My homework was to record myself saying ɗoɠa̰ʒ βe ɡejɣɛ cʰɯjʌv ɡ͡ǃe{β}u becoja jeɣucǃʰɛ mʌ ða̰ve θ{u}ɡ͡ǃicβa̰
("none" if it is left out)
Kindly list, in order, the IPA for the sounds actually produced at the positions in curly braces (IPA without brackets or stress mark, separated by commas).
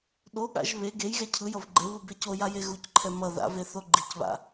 β, o